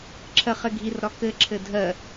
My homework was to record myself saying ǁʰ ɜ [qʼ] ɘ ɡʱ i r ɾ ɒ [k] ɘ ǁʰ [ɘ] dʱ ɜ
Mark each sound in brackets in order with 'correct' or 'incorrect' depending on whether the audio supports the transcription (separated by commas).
incorrect, correct, correct